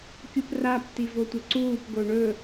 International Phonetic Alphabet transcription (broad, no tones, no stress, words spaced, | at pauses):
kʲuprap tivotʷɐǀuːp ɡoɳɵ